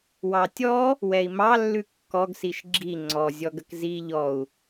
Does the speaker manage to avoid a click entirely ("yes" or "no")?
no